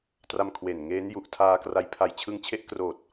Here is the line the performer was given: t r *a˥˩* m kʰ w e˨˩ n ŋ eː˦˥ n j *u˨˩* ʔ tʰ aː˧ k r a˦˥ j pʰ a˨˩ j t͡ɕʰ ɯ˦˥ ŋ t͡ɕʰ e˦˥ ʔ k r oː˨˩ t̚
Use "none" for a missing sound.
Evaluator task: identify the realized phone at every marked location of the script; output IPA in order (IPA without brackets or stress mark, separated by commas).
a˧, u˨˩